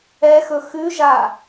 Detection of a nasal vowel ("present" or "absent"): absent